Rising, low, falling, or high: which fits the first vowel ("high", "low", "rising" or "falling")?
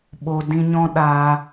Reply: low